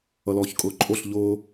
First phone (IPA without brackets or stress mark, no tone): ʌ